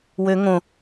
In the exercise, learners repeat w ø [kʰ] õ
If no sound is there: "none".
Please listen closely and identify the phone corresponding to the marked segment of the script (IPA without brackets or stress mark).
ŋ